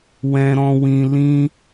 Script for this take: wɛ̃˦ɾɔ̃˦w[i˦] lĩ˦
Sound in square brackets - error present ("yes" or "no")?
yes